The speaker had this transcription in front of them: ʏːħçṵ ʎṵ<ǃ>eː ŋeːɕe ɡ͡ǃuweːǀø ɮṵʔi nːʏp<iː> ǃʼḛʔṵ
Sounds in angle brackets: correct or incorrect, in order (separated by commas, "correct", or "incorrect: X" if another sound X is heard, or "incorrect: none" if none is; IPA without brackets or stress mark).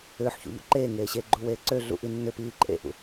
correct, correct